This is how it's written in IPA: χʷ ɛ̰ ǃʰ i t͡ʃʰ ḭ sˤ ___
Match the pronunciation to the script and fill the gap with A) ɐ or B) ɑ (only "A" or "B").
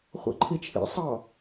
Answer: B